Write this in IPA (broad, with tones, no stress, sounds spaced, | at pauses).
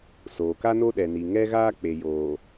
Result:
s oː˨ k a˦ n o˦ ɗ ɛ˨ n i˨ ŋ ɛ˦ ɣ aː˦ k͡p e˨ j oː˨